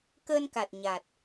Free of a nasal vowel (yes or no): yes